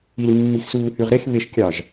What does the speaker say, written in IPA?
i l mː i x s uː h y ʁ ɾ e x β e ʃ kʲ ɑ ʒ

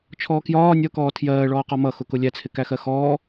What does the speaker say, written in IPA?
t͡ʃʰ ɔː k j ɒː nʲ ʌ k ɔː tʰ j ɜː ɭ ɔː q ɔ m ʌ x ʊ k ʊ lʲ æ t͡sʰ ɪ k æ x ɜ x ɔː

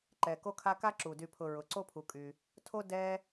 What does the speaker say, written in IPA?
ǃ ɛ˩ k o˦ kʰ a˦ k a˥ ǁ u˩ d y˨ pʰ ʊ˨ ɹ ʊ˩ ǀ o˦ pʰ u˩ kʼ y˩ | tʰ o˥ d ɛ˥

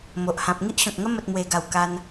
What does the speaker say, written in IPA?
m o˨ ʔ h ã˨ p̚ ŋ i˦ ʔ ɕ ɔ̃˨ k̚ ŋ ə˦ m ə˨ t̚ m w e˨˩ ɡ a˨˩ w k a˧ n

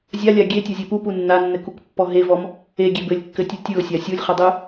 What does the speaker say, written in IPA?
zʲ a lʲ a ɡʲ e tʲ ɔ zʲ e p u p u nː a nː ɘ k u k pː ɔ ɦ e v ɔ m | e ɡʲ e b ɘ lʲ kː ɘ tʲ u tʲ ɯ ʊ̯ sʲ a sʲ u lʲ χ ɘ dˤ ɯ

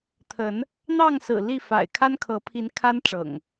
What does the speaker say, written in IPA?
t̪ʰ ə˨˦ n | n̪ ɑ˥˨ ŋ s ɹ̩˨˩ l i˥˨ f a̰˨˩ ɪ̯ kʰ a˦ n kʰ ɤ˨˦ pʰ i˨˦ n kʰ a˦ n ʈ͡ʂ ɤ̰˨˩ ŋ

